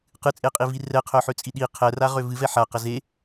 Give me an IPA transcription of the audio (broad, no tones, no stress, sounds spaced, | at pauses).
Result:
q ɨ t͡sʼ e qʼ i v i r ɛ qʰ œ ħ ø t͡sʼ i ɗ i qʰ ɛ r a ʁ ø v ɨ v ɛ ħ a q ə z e